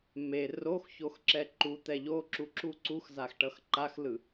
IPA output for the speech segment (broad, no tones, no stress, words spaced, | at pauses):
me roxçoxǁɛ ǃut̪ɛ ʎoǁuǁu ǀuxzaxʈʌx ǃaxlɯ